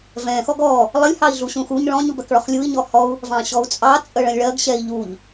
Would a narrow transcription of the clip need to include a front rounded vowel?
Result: no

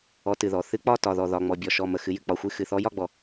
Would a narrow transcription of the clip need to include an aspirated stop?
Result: no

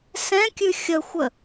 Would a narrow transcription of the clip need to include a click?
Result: no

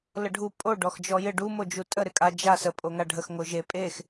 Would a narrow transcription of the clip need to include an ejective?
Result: yes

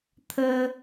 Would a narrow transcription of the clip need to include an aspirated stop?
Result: yes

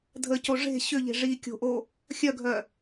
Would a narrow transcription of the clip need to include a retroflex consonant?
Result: yes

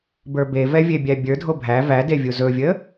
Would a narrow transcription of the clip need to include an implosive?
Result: no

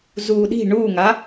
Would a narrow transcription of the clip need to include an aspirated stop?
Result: no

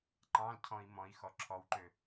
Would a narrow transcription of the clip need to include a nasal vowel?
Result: yes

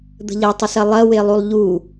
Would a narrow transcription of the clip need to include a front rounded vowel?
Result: no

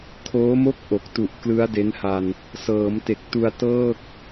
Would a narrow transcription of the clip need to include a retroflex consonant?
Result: no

